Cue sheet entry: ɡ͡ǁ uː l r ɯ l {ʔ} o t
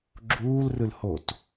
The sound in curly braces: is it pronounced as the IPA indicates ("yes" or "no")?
no